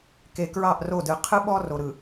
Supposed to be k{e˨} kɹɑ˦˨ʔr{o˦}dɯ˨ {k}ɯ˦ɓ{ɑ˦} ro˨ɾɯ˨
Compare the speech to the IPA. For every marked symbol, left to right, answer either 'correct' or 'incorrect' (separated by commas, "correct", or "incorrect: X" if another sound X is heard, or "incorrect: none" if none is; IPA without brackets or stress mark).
correct, incorrect: o˦˨, incorrect: qʰ, incorrect: ɔ˦